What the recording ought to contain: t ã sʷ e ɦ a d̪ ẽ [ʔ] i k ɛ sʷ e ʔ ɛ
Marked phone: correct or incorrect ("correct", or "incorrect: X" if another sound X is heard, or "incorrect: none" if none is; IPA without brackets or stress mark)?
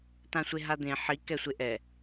incorrect: ħ